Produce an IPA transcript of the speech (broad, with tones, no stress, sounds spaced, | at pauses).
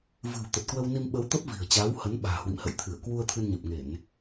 v ɨ̤˨˩ w t̪ ə˨˩ t̚ k w ə˧ w n i˧ m ɓ ə˨˦ w t̪ ə˦˥ p̚ v i̤˨˩ ə̯ t͡ɕ aː˨˦ w h ə˨˦ n ɓ a̤ː˨˩ h w ḭ˧˨ m h ə̰˧˨ j t̪ʰ ɨ˧˩ ə̯ k w u˧ ə̯ t̪ʰ ɨ˧ n ɲ ə˨˩ p̚ ŋ e˧˩˨ n